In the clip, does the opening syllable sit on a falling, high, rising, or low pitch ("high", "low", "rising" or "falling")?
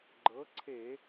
rising